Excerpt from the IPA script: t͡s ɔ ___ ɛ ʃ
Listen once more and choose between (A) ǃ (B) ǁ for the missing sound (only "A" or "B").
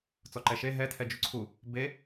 A